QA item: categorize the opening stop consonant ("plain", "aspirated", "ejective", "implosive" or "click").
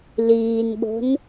implosive